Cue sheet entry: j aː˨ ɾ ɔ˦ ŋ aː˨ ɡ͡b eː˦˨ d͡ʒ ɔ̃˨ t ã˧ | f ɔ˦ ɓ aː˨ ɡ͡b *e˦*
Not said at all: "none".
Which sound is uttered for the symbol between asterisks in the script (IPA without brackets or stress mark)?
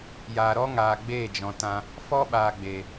e˨